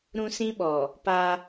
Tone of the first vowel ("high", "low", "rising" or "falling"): high